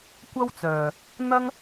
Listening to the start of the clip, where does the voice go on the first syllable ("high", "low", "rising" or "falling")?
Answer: high